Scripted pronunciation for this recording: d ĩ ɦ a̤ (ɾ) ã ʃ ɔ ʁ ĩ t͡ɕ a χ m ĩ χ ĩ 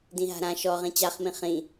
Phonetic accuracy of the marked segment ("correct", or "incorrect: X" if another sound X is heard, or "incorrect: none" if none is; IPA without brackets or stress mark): correct